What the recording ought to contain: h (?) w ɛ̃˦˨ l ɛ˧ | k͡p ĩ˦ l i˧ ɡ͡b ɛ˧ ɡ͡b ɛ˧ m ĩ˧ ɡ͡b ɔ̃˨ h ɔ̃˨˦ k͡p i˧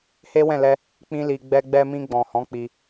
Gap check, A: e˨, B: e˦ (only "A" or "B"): B